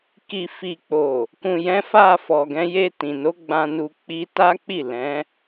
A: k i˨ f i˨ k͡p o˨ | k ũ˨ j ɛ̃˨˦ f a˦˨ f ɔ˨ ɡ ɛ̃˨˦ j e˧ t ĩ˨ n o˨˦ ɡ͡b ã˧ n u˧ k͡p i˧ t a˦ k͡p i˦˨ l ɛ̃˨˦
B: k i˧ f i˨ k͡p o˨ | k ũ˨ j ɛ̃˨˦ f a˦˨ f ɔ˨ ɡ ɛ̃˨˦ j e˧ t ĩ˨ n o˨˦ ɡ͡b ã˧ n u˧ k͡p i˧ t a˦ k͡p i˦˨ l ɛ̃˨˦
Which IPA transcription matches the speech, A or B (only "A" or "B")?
A